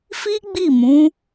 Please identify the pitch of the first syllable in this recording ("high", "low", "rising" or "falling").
high